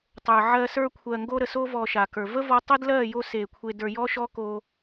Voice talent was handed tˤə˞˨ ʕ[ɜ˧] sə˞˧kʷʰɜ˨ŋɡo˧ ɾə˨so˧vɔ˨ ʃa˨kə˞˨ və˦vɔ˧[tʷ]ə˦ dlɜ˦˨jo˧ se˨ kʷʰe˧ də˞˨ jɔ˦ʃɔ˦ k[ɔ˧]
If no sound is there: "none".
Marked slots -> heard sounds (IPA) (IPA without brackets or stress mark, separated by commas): ɜ˧, tˤ, o˧